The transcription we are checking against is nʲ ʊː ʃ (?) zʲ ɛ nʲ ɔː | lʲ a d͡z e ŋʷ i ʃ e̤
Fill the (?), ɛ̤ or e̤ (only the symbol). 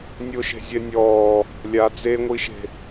e̤